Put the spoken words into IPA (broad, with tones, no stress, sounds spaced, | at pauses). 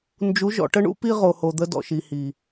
n d͡ʒ u˨˦ ʒ ɔ̰˨ ʈ ə˦ ɳ ṵ˦ p i˦ ʁ o˨ h o˨ d̪ ə˦ d ɔ̰˨ ʃ i˨ h i˨